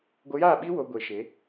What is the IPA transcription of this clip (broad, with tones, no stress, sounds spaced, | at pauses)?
ɡʷ ə˧ j aː˦˨ ɓ iː˦ w o˧ ɡʷ e˨˦ ʃ e˨˦